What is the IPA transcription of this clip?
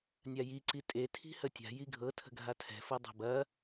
nʲ a j i ǀ i tʼ e tʰ i̤ h ə tʲ a̤ j i ɡʱ ɤ tʰ ə̤ ɡʱ a tʰ ɛ̤ f ɤ dˤ a̤ b ɐ

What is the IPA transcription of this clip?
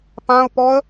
p ã ʊ̯ p ɔ ə̯

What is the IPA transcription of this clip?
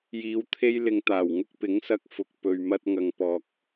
j iː˨˧ w t̪ʰ e˧ j l ɪ˨ ŋ t̪ aː˨˩ w ŋ ʊ˧ k̚ p ɪ˨˥ ŋ s ɐ˧ k̚ f ʊ˨ k̚ p ɵ˨ ɥ m ɐ˧ t̚ ŋ ɐ˨ ŋ p ɔː˨ k̚

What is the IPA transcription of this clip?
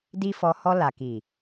d i˦ f ɔ˧ h ɔ˧ l a˨ k i˨

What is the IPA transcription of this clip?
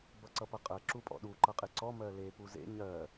b ʌ ǀ ʌ p ʌ qʼ ɜ ǁ u pʼ ɔ̰ ɗ u ǃ ʌ qʼ e ǀ ɔ m ɜ l e p u z ḛ ɲ ɜ

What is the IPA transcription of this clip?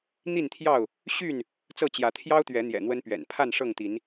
n̪ i˥˨ n t̪ʰ j ɑ˥˨ ʊ̯ | ɕ y˥˨ n | t͡s ɤ˥˨ t͡ɕ j ä˨˦ t̪ʰ j ɑ˦ ʊ̯ t̪ ɥ ɛ˨˦ n̪ j ɛ̰˨˩ n̪ w ə˦ n p ɥ ɛ̰˨˩ n pʰ a˥˨ n ʂ ɤ˥˨ ŋ t̪ i˨˦ n

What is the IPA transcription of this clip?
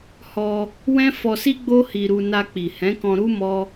h ɔ˧ | w ɛ̃˦ f ɔ˧ s i˦ ɡ͡b o˦ h i˧ ɾ u˧ n a˧ k͡p i˨ h ɛ̃˨˦ k ɔ̃˧ ɾ u˦ m ɔ˦

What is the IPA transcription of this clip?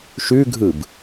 ʃ ʉ ɡʱ ɯ b

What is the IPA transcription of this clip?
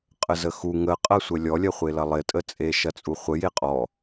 qʼ ə z ə x u ŋ ə qʼ ɐ sʷ ə lʲ ɔ lʲ ɐ χʷ e l ɐ lˠ ɪ tʼ ə t͡sʼ e ʃ ɐ t͡sʼ u χʷ ə j e qʼ ɔ

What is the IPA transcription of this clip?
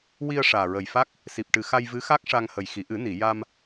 w i˧ ə̯ ʂ aː˨˩ ɹ ə˨˩ j f a˦˥ k̚ | s i˨˩ p̚ ʈ ɨ˨˩ x a˧ j v ɨ˧˥ x a˦˥ k̚ ʂ a˧ ŋ h ə˨˩ j x i˨˩˨ ʔ ɨ˨˩˦ n i˨˩˨ j a˧ m

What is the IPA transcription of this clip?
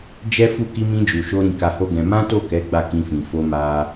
d͡ʒ ɛ˦ f u˦˨ k i˧ m ĩ˧ d͡ʒ u˨ ʃ o˧ ɾ ĩ˧ k a˧ h o˦ ɡ ɛ̃˧ m ã˦ t o˦˨ k ɛ˨˦ ɡ͡b a˦˨ k ĩ˧ f ĩ˨ f o˧ m a˧

